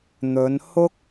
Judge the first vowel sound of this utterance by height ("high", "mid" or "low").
mid